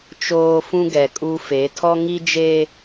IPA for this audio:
t͡ʃ oː˨ f ũ˦ ɡ ɛ˨ kʼ u˦ f e˨˦ tʰ ɔ˦ ŋ i˦ d͡ʒ e˦

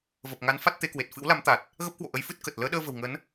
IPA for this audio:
v ə˨˩ p̚ ŋ a˨˦ n f a˦˥ t̚ t̪ e˧ k w e˨˩ t̚ f ɨ̰˧˥ w l a˨˦ m t̪ a˨˩ t̚ | ɣ ə˦˥ p̚ k w o̰˧˨ ʔ ə˨˦ j f ɨ˦˥ t̚ k ə˨˩ t̚ l əː˨˦ ɗ əː˧ v ə̤˨˩ w ŋ ə˨˦ n

